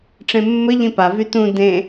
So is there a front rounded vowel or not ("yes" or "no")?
yes